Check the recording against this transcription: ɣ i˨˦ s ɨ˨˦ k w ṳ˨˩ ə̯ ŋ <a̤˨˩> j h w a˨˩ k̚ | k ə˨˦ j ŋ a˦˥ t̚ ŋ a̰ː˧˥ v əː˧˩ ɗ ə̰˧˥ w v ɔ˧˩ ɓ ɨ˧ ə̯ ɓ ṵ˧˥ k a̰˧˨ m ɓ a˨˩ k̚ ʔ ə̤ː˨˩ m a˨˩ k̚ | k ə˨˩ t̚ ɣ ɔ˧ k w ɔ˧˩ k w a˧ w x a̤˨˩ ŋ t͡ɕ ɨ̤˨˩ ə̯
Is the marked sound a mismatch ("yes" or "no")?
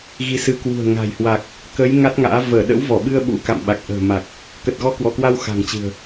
no